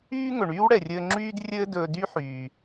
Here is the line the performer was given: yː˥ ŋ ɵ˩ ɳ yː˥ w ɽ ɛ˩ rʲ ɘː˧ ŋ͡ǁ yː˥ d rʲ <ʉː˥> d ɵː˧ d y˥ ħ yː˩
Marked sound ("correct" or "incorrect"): incorrect